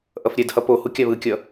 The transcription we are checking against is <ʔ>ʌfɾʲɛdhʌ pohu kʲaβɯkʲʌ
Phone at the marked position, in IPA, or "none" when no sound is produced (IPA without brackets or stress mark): ʔ